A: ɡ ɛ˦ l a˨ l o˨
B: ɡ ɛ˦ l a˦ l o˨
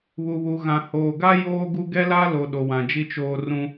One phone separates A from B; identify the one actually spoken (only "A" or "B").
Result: B